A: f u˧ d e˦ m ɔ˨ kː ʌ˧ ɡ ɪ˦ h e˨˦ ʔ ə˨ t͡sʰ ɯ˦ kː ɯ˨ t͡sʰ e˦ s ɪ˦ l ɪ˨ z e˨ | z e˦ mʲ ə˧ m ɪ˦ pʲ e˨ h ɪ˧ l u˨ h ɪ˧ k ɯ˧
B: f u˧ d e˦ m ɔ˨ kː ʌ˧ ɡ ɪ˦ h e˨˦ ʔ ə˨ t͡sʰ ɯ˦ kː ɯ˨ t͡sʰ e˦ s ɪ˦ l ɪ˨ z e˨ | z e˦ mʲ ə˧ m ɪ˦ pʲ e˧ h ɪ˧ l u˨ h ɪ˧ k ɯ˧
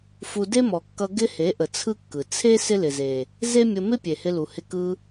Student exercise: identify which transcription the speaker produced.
A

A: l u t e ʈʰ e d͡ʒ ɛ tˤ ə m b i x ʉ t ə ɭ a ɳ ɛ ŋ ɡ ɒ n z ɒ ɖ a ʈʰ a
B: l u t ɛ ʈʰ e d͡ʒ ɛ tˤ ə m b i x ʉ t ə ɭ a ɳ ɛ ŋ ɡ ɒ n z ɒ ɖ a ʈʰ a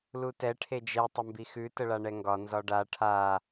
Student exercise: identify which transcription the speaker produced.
B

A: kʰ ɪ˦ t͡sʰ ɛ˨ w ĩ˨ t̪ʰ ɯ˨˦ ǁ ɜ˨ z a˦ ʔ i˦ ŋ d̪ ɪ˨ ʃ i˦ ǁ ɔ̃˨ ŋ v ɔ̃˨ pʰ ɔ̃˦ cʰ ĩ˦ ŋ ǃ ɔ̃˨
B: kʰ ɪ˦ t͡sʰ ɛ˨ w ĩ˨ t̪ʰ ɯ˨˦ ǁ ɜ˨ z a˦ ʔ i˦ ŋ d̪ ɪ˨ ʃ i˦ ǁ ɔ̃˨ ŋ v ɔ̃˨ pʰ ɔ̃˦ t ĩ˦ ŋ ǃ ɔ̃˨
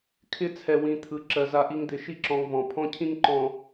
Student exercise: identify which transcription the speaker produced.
A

